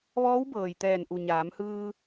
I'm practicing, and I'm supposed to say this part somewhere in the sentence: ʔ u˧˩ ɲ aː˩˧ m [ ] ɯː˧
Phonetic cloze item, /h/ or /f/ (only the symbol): h